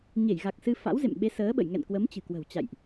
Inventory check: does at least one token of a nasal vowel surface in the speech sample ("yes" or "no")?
no